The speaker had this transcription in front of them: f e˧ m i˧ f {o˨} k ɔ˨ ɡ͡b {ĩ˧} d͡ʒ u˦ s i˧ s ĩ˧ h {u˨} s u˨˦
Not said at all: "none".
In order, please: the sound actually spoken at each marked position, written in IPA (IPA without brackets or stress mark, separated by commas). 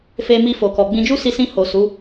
o˨, ĩ˧, o˨